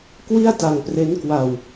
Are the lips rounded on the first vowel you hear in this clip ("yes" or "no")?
no